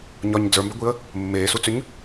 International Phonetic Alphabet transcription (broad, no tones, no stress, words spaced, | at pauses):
ɲɒɲ d͡zə˞mbɛɡʷiə̯ | mːeːsut͡sʏɲ